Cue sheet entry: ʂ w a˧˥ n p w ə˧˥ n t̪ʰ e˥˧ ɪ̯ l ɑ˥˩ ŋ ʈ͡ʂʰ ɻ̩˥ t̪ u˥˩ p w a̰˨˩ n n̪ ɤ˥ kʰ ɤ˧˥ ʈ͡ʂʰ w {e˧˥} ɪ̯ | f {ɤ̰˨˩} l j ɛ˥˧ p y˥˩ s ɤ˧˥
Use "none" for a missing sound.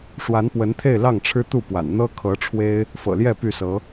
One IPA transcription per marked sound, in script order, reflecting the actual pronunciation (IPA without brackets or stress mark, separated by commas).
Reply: e˥, ɤ̰˨˩